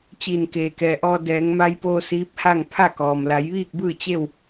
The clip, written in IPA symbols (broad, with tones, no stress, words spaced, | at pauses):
t͡ɕiː˧˩nkeː˩kɛː˩ʔɔː˧ dɛː˩˧ŋma˧jpoː˧ siː˧˥p̚ha˥˨ŋ pʰa˥˨kɔː˩m la˩˧jʋiː˥˨k̚bɯː˥˨ t͡ɕe˥˨w